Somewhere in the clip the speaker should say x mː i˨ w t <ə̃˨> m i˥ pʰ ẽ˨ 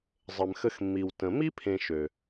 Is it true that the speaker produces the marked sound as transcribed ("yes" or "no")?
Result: yes